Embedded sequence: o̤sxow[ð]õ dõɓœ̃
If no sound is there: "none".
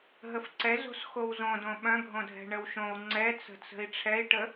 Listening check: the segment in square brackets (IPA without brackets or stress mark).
z